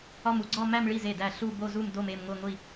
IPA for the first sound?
ɒ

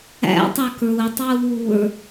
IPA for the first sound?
æ̰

